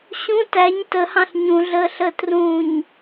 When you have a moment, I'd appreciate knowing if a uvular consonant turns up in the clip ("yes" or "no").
no